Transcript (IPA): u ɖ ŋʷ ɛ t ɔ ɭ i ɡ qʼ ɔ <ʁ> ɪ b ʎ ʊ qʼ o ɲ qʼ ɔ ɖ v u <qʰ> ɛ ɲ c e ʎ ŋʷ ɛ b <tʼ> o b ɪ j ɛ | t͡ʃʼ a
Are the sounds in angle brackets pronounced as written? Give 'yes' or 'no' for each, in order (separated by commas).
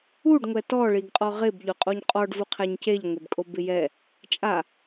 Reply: yes, yes, no